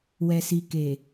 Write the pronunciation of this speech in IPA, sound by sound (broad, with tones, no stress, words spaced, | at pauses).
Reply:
wɛ˨si˨ keː˨